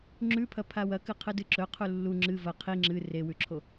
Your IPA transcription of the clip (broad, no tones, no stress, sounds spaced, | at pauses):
ŋ͡ǁ ʉ pʰ ɐ pʰ a w ɐ k ɨ qʰ ɨ d ɨ ǁ ɵ qʰ u lː u ŋ͡ǁ ɨ v ɐ qʰ i ŋ͡ǁ ɨ r e w ʉ ǁʰ o